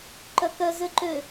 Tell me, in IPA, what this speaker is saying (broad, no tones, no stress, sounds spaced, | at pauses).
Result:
ǃ œ k œ z ø ǃ ø